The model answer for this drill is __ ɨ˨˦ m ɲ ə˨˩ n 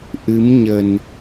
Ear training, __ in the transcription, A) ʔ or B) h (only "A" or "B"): A